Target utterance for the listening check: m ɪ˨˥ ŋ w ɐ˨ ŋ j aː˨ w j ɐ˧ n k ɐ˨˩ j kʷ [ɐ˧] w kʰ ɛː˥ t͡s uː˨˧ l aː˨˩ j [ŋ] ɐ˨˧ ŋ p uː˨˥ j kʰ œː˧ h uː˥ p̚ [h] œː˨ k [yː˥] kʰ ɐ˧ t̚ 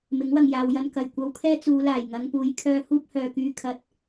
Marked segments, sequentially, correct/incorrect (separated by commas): correct, correct, correct, incorrect